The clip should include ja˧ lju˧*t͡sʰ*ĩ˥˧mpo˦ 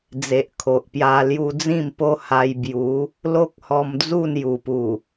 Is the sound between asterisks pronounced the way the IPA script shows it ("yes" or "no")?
no